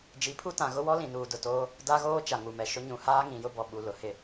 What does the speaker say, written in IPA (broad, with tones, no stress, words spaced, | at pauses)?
d͡ʒi˨˦pʰu˦tã˨ ɣʊ˦wɔ˦ lĩ˨nuː˨dʊ˨toː˦ | da˦ɣoː˦ t͡ʃa˨ŋu˨mɛ˨ ʃʊ˦ɲũ˨ haː˦ŋĩ˨jʊ˦bɔ˨ ɓu˨lʊ˨hɪ˦˨